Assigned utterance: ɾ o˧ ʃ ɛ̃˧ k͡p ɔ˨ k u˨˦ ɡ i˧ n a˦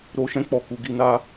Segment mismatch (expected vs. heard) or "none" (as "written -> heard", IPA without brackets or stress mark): none